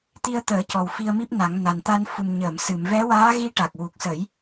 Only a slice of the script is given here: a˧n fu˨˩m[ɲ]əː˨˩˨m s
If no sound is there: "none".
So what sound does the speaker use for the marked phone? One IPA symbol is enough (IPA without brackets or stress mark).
ɲ